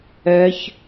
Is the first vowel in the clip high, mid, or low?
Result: mid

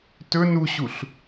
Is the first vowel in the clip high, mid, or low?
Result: mid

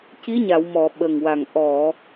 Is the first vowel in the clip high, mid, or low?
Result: high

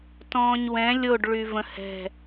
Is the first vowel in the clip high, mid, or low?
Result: mid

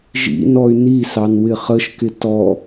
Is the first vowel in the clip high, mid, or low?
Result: high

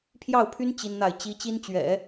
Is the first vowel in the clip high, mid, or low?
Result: low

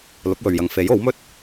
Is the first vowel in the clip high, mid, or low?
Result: high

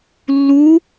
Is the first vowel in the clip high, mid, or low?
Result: high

